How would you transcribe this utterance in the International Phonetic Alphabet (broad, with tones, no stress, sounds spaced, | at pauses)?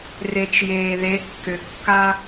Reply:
r e˧ t͡ʃ j eː˧ ð e˧˥ kː ʏ˧ kː a˥